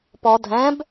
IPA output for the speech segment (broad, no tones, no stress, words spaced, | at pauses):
pɔ dʱɛ̃b